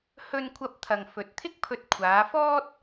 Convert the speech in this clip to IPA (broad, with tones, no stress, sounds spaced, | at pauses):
h ɵ˧ n kʷʰ ɐ˧ p̚ t̪ʰ ɐ˨ ŋ f ɵ˨˥ t̚ t̪ʰ ɪ˥ k̚ pʰ ɵ˧ t̚ kʷʰ aː˨˧ f ɔː˥ t̚